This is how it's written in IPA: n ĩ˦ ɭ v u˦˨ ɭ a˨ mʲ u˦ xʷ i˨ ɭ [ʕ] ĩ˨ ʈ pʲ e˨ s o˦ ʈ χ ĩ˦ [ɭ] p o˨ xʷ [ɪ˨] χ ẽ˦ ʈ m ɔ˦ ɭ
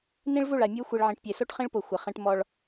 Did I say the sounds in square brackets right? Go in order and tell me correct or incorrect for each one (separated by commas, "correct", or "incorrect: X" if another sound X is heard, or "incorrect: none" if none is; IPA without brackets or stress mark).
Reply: correct, correct, correct